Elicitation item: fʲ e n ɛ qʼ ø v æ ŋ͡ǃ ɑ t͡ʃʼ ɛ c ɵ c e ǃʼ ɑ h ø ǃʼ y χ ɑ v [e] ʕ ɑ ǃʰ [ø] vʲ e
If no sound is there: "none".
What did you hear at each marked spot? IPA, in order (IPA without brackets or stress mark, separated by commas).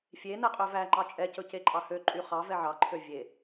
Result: ɛ, ø